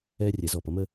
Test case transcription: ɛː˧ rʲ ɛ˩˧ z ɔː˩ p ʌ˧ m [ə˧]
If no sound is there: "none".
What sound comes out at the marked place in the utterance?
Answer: ə˧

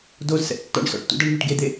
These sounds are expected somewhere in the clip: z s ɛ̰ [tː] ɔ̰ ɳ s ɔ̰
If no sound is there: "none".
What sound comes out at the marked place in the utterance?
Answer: tː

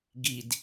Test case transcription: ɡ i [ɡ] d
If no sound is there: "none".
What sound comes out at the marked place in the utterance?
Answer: none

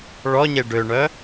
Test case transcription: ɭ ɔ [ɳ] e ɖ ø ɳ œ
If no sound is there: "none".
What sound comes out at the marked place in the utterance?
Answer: ɲ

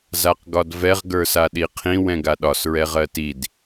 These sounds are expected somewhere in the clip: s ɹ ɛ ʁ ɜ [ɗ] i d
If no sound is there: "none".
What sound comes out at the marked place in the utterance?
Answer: t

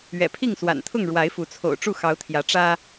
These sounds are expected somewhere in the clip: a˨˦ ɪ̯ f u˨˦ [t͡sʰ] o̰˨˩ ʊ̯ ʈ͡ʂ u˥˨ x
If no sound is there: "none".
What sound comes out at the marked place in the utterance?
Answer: t͡sʰ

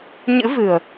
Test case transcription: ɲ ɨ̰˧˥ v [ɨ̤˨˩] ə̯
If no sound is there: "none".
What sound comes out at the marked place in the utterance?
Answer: ɨ̤˨˩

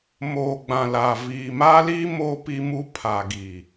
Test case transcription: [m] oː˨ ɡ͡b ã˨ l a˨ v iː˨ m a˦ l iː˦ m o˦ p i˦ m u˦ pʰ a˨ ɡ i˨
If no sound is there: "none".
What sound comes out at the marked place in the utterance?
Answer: m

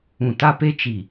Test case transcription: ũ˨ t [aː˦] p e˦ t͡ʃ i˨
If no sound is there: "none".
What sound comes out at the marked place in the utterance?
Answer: a˦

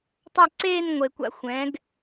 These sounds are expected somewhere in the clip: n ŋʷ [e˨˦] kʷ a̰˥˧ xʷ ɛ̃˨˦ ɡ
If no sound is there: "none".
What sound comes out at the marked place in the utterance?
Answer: e˨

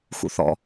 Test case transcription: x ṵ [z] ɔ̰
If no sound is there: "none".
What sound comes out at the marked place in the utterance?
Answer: θ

